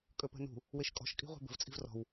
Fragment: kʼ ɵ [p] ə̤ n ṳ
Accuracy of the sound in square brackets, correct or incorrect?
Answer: correct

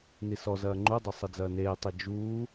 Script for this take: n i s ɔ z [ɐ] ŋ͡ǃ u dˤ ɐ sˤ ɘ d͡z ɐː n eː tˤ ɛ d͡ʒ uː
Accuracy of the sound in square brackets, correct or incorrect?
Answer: incorrect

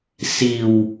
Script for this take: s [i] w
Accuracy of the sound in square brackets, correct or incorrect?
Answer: correct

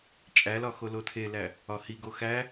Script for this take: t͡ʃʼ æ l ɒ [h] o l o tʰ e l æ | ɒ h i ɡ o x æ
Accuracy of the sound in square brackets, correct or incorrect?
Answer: incorrect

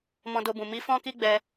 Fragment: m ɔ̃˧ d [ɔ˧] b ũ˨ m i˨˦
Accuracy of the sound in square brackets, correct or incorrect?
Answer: incorrect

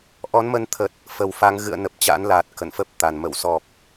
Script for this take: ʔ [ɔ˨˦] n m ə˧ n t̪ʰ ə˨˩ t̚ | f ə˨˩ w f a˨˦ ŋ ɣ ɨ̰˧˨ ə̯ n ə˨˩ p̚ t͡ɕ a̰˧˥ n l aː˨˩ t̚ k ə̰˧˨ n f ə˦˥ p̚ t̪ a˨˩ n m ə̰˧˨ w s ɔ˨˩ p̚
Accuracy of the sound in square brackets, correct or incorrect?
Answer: correct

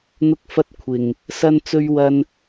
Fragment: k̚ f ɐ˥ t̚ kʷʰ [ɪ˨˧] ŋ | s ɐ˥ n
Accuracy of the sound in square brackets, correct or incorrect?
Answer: incorrect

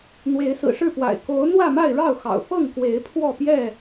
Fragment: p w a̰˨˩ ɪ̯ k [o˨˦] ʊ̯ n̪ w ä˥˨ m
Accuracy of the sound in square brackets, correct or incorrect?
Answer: correct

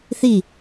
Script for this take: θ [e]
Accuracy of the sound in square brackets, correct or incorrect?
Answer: incorrect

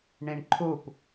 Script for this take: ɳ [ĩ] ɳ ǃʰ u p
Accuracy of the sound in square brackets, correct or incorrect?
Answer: correct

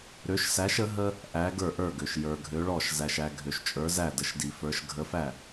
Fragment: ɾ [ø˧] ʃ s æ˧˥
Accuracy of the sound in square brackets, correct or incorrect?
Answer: incorrect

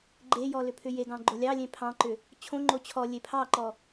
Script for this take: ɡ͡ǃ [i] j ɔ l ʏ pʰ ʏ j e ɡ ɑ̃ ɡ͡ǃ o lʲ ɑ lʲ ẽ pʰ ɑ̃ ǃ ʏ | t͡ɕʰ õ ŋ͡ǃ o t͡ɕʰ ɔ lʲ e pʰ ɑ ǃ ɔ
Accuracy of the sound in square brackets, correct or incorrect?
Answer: incorrect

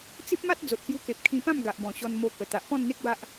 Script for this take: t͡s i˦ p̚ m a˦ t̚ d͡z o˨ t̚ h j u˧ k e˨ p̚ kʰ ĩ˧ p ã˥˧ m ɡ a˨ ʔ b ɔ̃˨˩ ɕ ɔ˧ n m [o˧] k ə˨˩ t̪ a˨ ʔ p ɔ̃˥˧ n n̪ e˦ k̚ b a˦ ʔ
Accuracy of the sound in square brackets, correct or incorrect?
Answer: correct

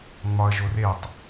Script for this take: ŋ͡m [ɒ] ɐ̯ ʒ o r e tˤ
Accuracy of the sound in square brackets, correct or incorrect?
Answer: correct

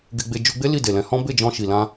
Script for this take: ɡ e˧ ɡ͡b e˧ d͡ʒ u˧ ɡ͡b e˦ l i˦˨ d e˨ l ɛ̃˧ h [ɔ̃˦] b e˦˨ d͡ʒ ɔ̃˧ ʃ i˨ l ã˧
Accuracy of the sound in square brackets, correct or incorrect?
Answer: correct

